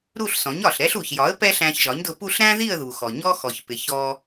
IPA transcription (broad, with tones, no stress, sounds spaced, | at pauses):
ɾ u˥˧ ɬ s ɔ̃˩˥ ɲ ɒ˩ ɬ ɾ ɛ˥ ɬ u˩ ç j ɒ˩˥ ə̯ p ɛ˥ ɬ æ̃˧ ç ʒ ɒ˩˥ ɲ d ʊ˧ p u˥˧ ɬ ɾ æ̃˥ ð i˥˧ ə̯ ð u˩ x ɔ˩ ɲ ɔ˥ x ɔ˩ ç p ɪ˩ ç ɔ˧